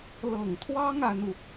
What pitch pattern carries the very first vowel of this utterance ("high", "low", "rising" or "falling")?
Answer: low